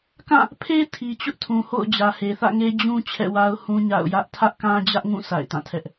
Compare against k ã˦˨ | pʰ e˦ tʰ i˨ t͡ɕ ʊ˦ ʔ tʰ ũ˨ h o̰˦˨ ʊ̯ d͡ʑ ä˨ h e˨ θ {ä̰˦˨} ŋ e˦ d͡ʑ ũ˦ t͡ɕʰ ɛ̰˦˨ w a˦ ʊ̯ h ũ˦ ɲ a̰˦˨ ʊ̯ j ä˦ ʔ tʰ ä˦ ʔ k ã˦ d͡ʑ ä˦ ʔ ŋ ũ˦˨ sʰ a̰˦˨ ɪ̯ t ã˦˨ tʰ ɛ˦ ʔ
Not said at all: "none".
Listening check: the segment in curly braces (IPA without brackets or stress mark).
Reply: ä̰˦˨